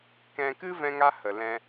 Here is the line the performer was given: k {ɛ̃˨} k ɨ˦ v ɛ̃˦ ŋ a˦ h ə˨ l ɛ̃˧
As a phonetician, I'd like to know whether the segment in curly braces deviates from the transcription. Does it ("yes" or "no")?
yes